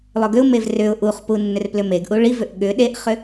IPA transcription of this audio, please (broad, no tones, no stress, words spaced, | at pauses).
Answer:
lˠʏɡʏʊ̯mev rʏʊ̯ ʔuχpu nːʏrplʏmeɡʔu ɭivʏʔ ɠʏ ɗeʔχʏ